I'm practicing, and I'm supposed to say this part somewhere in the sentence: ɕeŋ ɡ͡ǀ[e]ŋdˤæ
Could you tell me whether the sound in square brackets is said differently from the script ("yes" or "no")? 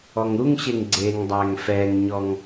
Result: no